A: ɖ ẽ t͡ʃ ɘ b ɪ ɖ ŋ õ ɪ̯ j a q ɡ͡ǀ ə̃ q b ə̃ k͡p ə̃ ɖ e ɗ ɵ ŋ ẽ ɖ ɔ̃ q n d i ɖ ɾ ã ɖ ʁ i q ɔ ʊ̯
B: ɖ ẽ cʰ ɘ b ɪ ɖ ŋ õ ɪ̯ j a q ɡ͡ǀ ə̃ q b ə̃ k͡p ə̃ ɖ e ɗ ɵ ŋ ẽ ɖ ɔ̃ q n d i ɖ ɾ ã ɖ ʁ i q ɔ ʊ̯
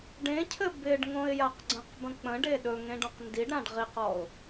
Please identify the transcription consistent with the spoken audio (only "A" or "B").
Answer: B